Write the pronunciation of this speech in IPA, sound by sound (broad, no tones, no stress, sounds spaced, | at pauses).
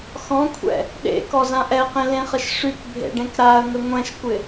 x ɔ̃ kʷʰ ɛ̰ | ɗ ḛ k ɔ z ã ʔ ɛ q ẽ l ẽ χ ə ʃ ʂ y k bʱ ḛ ɖ ẽ k ɾ a ə̯ ŋ ə ŋʷ ɛ̃ ʃ kʷ ɪ